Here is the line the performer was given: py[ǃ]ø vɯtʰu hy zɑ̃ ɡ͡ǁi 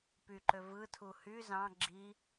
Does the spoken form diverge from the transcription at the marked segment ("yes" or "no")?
no